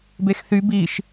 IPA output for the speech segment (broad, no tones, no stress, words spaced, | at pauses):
bexθy biʃ